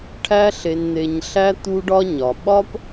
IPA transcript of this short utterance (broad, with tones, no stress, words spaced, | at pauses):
ʈʰæ˥ɬe˧n n̪e˧ɲɬæ˥ t̪u˥ɖɒ˥ ɲɒ˩ɓɒ˥p